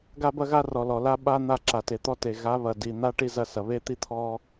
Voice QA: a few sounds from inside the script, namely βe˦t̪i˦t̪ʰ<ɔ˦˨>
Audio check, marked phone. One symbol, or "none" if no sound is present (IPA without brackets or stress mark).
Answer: ɔ˦